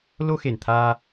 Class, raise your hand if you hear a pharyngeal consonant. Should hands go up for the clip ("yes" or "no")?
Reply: no